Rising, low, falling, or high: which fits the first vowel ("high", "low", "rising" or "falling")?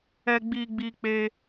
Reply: high